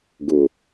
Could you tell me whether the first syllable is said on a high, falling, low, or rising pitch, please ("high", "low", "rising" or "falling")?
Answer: low